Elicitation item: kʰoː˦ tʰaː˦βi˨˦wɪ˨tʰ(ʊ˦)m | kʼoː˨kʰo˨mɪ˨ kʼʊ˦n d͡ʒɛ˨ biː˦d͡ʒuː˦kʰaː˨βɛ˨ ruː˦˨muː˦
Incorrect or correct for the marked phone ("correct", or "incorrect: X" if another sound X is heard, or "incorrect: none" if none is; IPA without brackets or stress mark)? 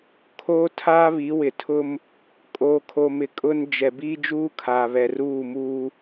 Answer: correct